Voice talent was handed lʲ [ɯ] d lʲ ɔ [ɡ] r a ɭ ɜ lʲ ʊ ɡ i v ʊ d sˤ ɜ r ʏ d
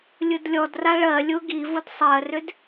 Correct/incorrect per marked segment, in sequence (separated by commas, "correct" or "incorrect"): correct, incorrect